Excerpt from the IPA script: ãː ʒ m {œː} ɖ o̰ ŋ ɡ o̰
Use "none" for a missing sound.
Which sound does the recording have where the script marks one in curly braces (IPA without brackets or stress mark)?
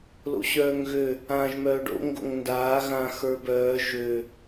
œː